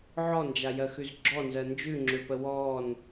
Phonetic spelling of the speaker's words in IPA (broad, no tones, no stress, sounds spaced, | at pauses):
ʕ ɔ n d͡ʒ a j ɜ x ʉ z ɡ͡ǁ ɔ n z ɜ n d͡ʒ ʉ ŋ͡ǁ ø p ə w ɔː n